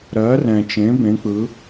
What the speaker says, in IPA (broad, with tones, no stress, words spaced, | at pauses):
ɾɜ˩˥rɛ̃˩t͡ʃẽ˩˥ bẽ˩˥k͡pɯ˩˥